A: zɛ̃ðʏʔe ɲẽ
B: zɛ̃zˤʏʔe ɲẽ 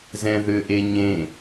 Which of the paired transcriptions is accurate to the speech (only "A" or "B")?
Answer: A